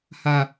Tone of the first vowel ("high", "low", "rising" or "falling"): high